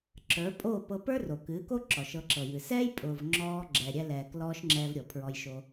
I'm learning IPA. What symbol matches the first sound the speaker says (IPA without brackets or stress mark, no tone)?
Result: ǁ